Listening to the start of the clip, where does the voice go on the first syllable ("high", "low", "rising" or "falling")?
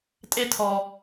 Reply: high